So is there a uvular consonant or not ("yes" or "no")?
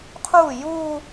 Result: yes